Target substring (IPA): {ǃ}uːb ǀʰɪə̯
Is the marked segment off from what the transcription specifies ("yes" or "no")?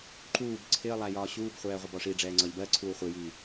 no